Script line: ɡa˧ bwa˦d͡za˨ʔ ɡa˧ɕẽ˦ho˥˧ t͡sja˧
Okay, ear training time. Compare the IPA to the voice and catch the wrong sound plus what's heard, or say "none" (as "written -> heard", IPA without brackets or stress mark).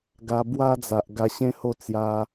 none